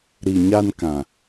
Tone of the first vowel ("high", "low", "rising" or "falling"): low